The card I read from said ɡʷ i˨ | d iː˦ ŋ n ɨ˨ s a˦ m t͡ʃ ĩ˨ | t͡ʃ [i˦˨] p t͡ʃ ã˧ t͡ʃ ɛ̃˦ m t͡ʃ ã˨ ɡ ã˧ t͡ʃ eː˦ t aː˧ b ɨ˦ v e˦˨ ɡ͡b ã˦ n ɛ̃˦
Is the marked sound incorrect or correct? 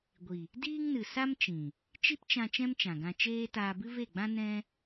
incorrect